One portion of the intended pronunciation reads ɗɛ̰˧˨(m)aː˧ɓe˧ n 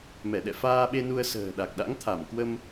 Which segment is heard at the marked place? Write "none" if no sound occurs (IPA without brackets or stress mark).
f